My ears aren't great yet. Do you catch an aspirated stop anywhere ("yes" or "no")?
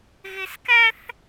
no